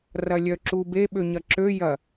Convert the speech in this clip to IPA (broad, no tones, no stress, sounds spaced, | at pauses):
r ɐ lʲ œ ǁ u b e ɓ ø ɲ ɐ ǁ ø j ɐ